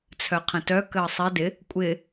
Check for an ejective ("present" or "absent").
present